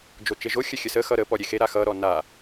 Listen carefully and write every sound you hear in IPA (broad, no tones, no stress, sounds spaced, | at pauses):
d͡ʒ o t͡ʃ e ʒ o xʲ ə xʲ ə s ə x ʌ ɾ ə p ɔ ɾʲ e x e ɾ a x ʌ ɾ ɔ n a